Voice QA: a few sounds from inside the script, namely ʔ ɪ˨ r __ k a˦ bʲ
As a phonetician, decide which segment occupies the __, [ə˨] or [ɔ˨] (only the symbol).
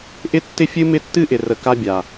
ə˨